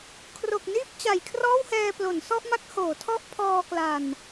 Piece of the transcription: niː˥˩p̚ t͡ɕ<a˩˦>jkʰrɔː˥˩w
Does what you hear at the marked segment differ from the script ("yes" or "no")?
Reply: no